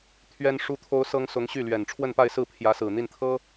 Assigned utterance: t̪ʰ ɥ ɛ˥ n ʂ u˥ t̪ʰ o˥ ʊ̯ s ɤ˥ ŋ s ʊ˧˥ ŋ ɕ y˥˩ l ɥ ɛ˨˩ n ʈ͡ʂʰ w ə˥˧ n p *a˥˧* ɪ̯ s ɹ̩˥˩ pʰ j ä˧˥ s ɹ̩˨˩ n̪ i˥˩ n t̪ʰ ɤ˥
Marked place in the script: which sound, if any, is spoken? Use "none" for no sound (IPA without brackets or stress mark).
a˥˧